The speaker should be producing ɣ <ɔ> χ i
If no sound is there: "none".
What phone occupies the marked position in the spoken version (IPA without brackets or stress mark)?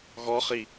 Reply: ɔ